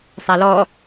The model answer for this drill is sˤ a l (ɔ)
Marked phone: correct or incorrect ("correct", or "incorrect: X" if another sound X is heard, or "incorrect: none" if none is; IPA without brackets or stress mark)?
correct